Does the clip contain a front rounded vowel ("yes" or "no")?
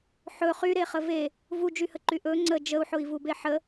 yes